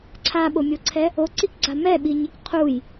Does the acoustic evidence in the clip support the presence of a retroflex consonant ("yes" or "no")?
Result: no